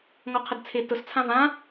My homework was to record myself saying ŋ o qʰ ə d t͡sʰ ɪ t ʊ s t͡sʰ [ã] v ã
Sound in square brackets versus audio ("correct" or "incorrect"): correct